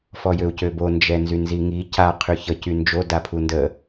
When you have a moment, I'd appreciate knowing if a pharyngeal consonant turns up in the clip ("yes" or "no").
no